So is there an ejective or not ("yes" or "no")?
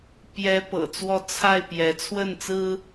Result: no